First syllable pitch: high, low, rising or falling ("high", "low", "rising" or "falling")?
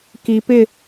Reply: low